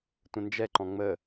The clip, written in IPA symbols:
tʷ ə̃ n d͡ʒ ɛ ǃ ɔ̃ ŋ͡m ə

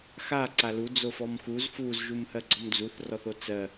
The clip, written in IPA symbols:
x a ǀ a l u d͡z o f ɔ m x u z f u z ʒ u m h ɜ ɡ͡ǀ ɔ m d͡z u θ r ɔ θ o t͡s ɜ

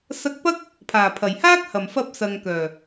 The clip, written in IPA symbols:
s ɐ˧ k̚ p ɐ˥ k̚ | pʰ aː˨˩ pʰ ɐ˨˩ j h aː˥ k̚ h ɐ˨˩ m f ɐ˧ p̚ s ɐ˨ ŋ k œː˨˩

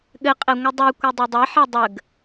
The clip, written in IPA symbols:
ɠ ɘ qʼ ɛ ŋʷ ɯ dˤ ʉ kʷ a dˤ ɯ dˤ ɛ ħ ɛ dˤ ə ɡ

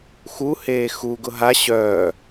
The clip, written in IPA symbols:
x u h eː x u ɡ ʊ ɦ a ɕ œː

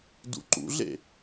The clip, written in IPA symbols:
d ṵ ǃ ṵ ɮ ḛ

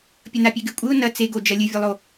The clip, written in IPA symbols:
pʲ ɐ n a pʲ e ɡ ɨ kʷʼ ɨ ʊ̯ n ɐ t͡s e ɡ o d͡ʒ ɐ lʲ ɨ vʲ ɨ lˠ o

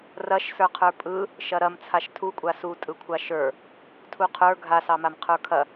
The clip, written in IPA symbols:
r ɐ ʃ s ə˞ qʰ ə˞ pʼ ɯ | ʃ ɐ ɾ ɐ m t͡sʰ a ʃ tʰ u kʷʼ a s u tʼ ɯ kʷʰ a ʃ ə˞ | tʰ u qʰ ə˞ ɡʱ a s ɑ m a m qʰ ə˞ kʰ ɐ

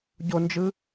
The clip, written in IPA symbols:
ɟ o n d͡ʒ ɯ

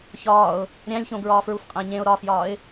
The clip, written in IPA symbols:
ç ɒː ʊ̯ | ɾʲ æ̃ lʲ ç õ ɡ ɹ ɒː f ɹ u f qʼ æ̃ ɲ ẽ ʊ̯ ɾ ɒ f j ɒː ɪ̯

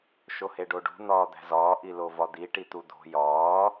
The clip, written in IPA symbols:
ʃ o h e ɖ o ɖ ṳ n̪ ɒː d̪ æ̤ z ɒː ʔ i l o v ɒ d̪ i ʈ i t̪ u d̪ o̤ j ɒː

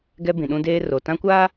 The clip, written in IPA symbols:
ɡ ɛ˦ b ĩ˨ ɗ ũ˦ d eː˦ r o˨ t ã˦ kʷ aː˦

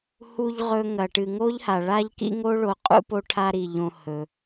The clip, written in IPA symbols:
h u˨ ʎ ʁ ɵ˨ ŋ ɐ˩ ʈ ɨ˩ ŋ o˥ ʎ h a˩ ɭ a˥ ʎ k ḭ˥ ŋ o˥ ɭ o˨ qʼ ṵ˦ p o˦ ʈʰ a˦ ɾ i˩ ʎ õ˨ h ɵ˩

